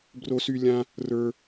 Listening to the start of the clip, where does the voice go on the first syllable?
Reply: high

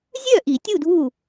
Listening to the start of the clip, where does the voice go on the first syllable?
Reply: falling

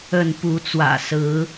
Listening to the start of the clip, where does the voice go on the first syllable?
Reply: falling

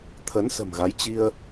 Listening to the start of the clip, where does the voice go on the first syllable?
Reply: rising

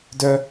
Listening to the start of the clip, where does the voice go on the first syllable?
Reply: high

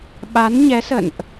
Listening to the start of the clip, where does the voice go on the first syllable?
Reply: rising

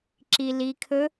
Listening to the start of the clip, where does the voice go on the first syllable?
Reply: low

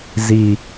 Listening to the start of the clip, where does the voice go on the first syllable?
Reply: low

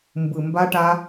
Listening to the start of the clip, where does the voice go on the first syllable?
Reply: low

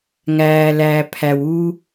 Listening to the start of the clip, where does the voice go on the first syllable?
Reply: low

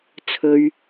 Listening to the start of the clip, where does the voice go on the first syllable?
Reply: low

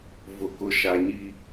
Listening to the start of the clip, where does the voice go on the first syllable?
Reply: low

